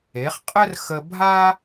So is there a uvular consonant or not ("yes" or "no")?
yes